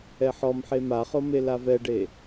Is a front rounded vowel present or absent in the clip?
absent